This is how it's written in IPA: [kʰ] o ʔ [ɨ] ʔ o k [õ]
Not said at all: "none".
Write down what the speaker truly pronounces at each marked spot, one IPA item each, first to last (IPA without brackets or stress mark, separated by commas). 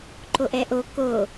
ǃ, ɛ, o